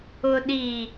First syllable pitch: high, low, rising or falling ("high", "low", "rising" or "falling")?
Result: low